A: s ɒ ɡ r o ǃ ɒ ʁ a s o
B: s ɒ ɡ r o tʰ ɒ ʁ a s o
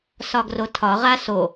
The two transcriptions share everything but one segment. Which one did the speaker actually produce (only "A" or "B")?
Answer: B